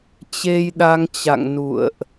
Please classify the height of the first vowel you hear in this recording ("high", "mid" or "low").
mid